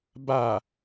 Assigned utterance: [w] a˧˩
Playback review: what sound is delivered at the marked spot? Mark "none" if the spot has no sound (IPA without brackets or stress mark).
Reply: b